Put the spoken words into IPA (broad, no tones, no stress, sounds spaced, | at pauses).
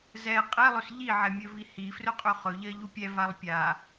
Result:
z ɛ qʼ ɛ lˠ ɵ s ʎ i ʕ ɛ mʲ ɵ v i h i f r ɵ qʼ ɵ χ ɵ ʎ ɜ ʎ u pʲ ɛ v a lˠ pʲ a